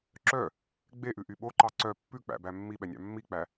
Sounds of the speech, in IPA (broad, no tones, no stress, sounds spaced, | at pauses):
ǁ œ | ɡ͡b e ʔ ʉ ʔ y ɓ o ǃ ɑ ǀ œ pː ʉ k͡p æ̰ b æ mː i ɓ ɛ nʲ ɑ̰ mː i k͡p æ